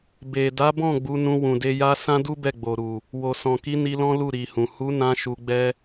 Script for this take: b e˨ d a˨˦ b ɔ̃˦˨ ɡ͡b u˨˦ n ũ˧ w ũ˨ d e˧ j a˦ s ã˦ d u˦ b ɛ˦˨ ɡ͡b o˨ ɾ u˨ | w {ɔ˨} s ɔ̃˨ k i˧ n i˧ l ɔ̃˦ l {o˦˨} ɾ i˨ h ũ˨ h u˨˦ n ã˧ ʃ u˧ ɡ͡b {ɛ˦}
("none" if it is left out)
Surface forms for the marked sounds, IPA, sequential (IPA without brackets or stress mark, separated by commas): o˨, u˦˨, ɛ˦